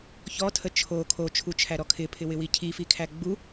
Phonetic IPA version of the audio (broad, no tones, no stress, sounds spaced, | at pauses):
ç ɔ tʰ ə t͡ʃʰ o kʰ o t͡ʃʰ u t͡ʃʰ æ ɾ ɔ kʰ ɪ pʰ ɪ w ɪ w i cʰ i f i kʰ æ ɡ͡b u